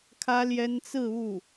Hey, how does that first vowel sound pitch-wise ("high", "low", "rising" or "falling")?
high